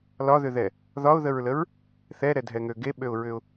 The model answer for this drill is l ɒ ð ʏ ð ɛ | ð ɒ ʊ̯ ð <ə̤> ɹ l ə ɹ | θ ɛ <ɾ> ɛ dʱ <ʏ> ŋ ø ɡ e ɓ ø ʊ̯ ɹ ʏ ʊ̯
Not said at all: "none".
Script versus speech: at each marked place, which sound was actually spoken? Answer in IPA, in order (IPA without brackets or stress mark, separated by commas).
ə, ɾ, ɛ